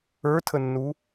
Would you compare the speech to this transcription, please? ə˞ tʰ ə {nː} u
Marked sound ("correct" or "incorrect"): correct